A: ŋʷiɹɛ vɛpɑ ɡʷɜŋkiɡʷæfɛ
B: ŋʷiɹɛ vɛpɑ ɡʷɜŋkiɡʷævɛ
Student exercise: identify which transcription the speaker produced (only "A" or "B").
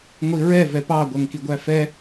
A